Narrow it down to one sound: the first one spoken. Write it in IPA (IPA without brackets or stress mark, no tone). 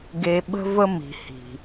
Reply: ɡ